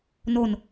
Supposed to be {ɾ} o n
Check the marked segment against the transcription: incorrect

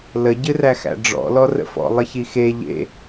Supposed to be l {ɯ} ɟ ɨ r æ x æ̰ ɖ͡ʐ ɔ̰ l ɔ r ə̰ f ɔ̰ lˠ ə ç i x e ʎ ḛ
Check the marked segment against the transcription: incorrect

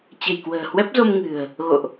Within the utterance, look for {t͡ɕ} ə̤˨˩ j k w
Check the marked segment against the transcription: correct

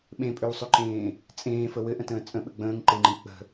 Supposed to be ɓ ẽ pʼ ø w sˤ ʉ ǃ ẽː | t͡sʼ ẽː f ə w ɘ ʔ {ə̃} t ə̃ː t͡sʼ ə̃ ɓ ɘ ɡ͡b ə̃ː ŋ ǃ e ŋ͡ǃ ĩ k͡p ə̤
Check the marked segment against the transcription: correct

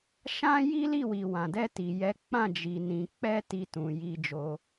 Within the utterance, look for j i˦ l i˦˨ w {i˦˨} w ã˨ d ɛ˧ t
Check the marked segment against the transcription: incorrect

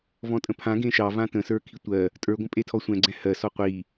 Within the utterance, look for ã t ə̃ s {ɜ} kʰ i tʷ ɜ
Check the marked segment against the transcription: incorrect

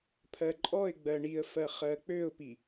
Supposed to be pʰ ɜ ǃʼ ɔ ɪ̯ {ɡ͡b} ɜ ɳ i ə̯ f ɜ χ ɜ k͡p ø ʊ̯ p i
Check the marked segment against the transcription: correct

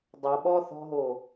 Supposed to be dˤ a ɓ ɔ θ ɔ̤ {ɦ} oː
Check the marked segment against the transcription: correct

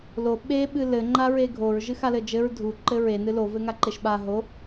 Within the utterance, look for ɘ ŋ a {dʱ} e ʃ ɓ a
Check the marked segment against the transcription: incorrect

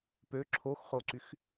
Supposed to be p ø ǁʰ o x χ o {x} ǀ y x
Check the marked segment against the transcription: incorrect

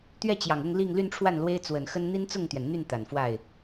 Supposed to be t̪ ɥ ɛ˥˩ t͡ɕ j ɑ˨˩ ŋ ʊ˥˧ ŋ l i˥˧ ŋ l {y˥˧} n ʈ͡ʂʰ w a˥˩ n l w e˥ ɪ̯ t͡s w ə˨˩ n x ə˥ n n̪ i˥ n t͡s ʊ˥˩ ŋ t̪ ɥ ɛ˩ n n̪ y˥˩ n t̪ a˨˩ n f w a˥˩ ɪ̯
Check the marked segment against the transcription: correct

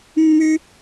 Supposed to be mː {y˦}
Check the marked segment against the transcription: correct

